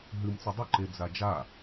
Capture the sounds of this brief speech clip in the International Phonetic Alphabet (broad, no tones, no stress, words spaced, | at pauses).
ɦɨmt͡sɵ dˤɵǃe d͡zad͡ʒa